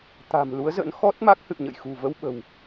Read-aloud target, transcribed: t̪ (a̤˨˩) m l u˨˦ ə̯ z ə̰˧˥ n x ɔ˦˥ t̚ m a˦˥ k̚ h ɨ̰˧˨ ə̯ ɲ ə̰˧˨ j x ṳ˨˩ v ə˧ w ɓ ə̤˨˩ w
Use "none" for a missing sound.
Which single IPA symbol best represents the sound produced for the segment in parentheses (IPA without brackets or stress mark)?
a̤˨˩